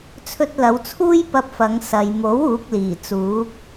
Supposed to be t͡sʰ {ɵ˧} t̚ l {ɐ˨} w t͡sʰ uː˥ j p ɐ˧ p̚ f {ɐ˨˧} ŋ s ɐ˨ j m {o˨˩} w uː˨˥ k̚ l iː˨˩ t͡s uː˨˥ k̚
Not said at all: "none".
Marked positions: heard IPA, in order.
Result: ɵ˧, ɐ˨˧, ɐ˨˧, o˨˥

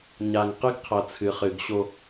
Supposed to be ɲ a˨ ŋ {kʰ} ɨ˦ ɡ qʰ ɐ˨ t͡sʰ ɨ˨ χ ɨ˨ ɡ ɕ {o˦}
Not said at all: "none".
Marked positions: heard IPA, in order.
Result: q, o˦

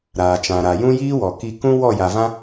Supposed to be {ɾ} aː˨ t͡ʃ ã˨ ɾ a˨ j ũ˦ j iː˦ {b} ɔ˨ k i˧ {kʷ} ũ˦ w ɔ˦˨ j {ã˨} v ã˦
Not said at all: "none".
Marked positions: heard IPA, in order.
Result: ɾ, w, k, a˨

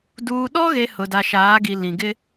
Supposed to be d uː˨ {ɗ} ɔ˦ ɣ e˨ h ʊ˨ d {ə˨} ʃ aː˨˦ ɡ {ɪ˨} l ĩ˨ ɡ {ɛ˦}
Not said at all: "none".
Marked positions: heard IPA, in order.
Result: ɗ, a˨, i˨, ɪ˦

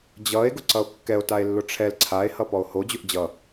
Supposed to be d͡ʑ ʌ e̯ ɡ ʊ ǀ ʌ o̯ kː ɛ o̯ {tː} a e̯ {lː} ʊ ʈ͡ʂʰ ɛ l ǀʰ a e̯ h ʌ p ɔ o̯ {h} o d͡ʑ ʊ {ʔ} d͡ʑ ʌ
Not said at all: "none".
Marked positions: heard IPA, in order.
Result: t, lː, h, ʔ

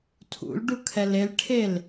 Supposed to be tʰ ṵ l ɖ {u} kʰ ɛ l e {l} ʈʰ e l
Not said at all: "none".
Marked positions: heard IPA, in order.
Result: u, l

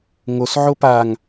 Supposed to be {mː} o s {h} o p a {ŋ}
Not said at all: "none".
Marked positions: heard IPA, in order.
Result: ŋ, ʕ, ŋ

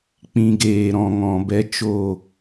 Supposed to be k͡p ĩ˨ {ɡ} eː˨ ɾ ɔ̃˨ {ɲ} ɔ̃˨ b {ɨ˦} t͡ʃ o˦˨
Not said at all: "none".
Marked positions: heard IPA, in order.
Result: ɡ, ŋ, ɛ˦

